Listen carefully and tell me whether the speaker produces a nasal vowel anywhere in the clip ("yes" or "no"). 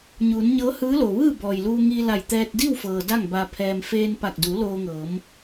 no